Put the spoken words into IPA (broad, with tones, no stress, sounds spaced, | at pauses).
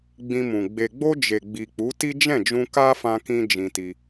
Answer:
ɡ͡b ĩ˧ m ũ˨ ɡ͡b e˨ ɡ͡b o˧ d͡ʒ e˨ ɡ͡b i˨ k͡p u˨˦ t i˦ d͡ʒ ɛ̃˦˨ d͡ʒ ũ˧ k a˦ f ã˧ k ĩ˧ d͡ʒ ĩ˧ t i˧